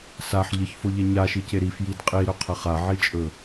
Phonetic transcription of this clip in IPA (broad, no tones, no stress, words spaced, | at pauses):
saħ ʎəçfoʎɛ ɲaʃice ɾifjid qʼiɾɵqʰə χaʕit͡ʃʼɵ